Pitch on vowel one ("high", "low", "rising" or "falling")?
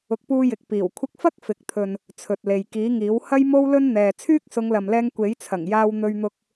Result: rising